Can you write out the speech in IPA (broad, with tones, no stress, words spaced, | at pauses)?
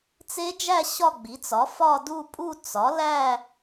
t͡se˦˥d͡ʒæ˥˧ ɕɒ˥˧ɡ͡bi˩˥t͡sɒ˩˥ fɒ˥˧du˥˧pʼu˥˧ t͡sɒ˩˥læ˥˧